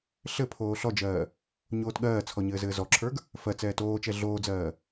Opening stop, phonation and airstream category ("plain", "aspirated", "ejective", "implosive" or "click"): aspirated